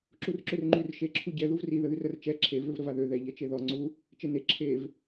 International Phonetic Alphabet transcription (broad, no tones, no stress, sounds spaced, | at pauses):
ǁ u r ǁ ø r ŋ͡ǃ y r ʃ e ǁʰ u ɟ ɛ ð u v r i ð ə ð y r ə r t͡ʃ ɛ ǁʰ e v ø v ɾ ə v a ð ø ð ɛ ʎ ɛ t͡ʃ e ð ɔ ŋ͡ǀ u | t͡ʃ e n e ǁʰ e v